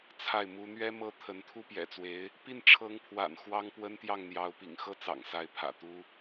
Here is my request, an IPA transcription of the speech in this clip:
t͡sʰa˥˩ɪ̯mu˥ n̪ɥɛ˥mɤ˥ t̪ʰə˧˥nt̪ʰu˥pjɛ̰˨˩t͡swe˧˥ɪ̯ | pi˥˩n ʈ͡ʂʰɤ˧˥ŋpʰwa̰˨˩n xwɑ˥ŋpwə˥nt̪jɑ˥˩ŋn̪jɑ˧˥ʊ̯ pḭ˨˩ŋxɤ˥˩t͡sɑ̰˨˩ŋ sa˥ɪ̯pʰä̰˨˩t̪u˥

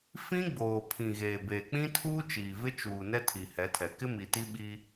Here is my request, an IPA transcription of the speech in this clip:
fĩ˦ɡ͡boː˨pʰĩ˨ ɣeː˨beː˨k͡pĩ˦tʰuː˦ t͡ʃiː˨vɪ˦ t͡ʃuː˨ nɛ˦tʰi˨hɛ˨˦tʰɛ˨ kɪ˦mi˨ti˦ɓi˦

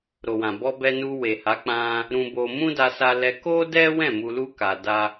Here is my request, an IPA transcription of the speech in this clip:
ɾo˨wã˨ bɔ˧bɛ˧nu˧ we˨ha˨˦ k͡pã˧ | ɾũ˧bo˧ mũ˦da˧sa˧lɛ˧ ko˦dɛ˦wɛ̃˦˨ mu˧lu˦ ka˧ da˧

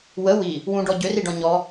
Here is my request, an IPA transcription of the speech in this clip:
wə wi | wũɖɔ ɟøriɖɔ̃ ɲɔ

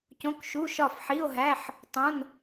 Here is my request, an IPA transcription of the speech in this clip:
cõ˧˥˧kʃu˧˥˧ʃɒ˥˨f ħi˧˥˧o̯ɦæ˧˥˧ħ | tˤõ˧˥˧n

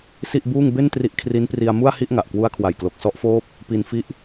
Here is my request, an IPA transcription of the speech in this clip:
si˥˩ʔbuː˥˩ŋ be˥˩n tri˦˥ʔkʰri˦˥n pri˧a̯mu˥˩a̯ hi˥˩ʔŋa˨˩ʔkwu˦˥a̯ kʰwa˨˩jklo˨˩k̚ sɔ˦˥ʔfoː˦˥p̚ | pi˧nfi˦˥ʔ

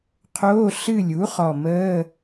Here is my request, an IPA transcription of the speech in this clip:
qʰoː˧˥˧ ɬɨ˦˨lʲu˩˥χɔ˨˩ məː˧˥˧

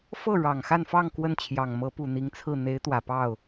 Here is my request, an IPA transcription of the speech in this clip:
fɤ˥˩ ɻɑ˨˩ŋ xa˥˧nfɑ˥˧ŋ kwə˥˩nt͡ɕʰjɑ˨˩ŋ mɤ˧˥pu˨˩n̪i˧˥ŋt͡sʰɹ̩˥˩ n̪e˧˥ɪ̯ t̪wä˨˩pɑ˥˩ʊ̯

